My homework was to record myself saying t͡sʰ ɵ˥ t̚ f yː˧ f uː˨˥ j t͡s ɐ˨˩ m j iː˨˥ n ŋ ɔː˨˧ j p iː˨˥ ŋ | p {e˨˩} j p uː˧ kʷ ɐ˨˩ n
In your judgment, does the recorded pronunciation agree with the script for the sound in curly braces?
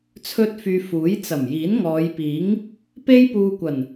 no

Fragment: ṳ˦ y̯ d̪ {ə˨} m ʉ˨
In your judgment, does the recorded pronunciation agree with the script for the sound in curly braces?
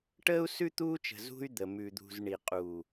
yes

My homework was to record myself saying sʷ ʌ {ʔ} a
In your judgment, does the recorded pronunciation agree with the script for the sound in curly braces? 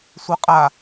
no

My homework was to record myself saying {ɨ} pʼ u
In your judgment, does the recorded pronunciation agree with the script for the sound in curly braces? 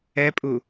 no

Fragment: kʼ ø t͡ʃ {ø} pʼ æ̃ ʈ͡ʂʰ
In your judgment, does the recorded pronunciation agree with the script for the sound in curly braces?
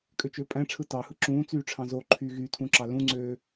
yes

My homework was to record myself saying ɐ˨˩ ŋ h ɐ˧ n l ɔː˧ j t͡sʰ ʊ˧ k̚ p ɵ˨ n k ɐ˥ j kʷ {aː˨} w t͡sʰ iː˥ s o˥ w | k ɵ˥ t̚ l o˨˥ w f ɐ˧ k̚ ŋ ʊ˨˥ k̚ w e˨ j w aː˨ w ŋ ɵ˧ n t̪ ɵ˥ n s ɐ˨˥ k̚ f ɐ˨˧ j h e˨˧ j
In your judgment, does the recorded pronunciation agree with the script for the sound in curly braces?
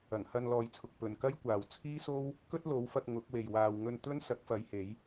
yes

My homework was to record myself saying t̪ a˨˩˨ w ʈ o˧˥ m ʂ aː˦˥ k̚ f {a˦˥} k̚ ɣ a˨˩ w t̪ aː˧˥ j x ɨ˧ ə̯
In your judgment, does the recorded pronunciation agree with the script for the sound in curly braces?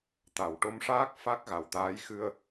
yes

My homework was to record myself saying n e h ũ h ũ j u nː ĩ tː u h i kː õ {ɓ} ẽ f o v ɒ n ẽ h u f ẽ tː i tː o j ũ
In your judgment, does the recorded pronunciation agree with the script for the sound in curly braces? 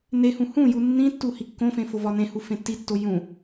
no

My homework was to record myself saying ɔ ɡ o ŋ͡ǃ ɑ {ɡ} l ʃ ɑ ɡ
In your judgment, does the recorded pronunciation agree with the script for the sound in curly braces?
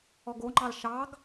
no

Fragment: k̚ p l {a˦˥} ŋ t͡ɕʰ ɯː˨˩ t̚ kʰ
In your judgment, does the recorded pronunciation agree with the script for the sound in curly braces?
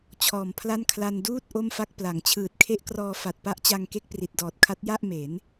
no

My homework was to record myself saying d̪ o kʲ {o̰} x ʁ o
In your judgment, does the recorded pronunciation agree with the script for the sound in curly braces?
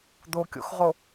yes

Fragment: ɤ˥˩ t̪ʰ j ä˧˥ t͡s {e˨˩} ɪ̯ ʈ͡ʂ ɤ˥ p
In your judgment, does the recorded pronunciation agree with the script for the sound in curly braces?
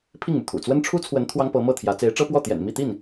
no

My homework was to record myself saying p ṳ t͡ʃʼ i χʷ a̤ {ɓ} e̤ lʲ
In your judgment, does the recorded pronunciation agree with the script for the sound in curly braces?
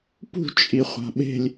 yes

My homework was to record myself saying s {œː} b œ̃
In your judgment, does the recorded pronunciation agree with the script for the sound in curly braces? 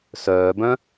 yes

